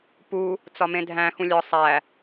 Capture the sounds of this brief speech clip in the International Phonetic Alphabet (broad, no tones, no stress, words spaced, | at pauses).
pu | t͡sɒmẽdʱæ̃ xũlʲɒ sˤæ